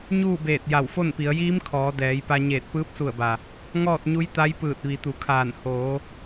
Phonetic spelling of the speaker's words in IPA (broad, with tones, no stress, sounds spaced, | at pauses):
ɲ uː˥˨ b eː˧˩ t̚ j a˧˩ w f o˥˨ n p i˩˧ ə̯ j iː˧˥ m kʰ ɔː˩˧ d ɛː˩˧ j p a˧ ɲ eː˧˩ t̚ p ɯː˧˥ p̚ s u˧˩ ə̯ b a˩ | ŋ ɔː˥˨ t̚ ɲ u˧˥ j t̪ a˧˥ j p ɯː˧˩ t̚ ʋ i˩˧ t̪ u˩˧ kʰ aː˧˩ n h oː˩˧